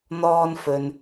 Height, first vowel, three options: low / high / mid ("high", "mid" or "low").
mid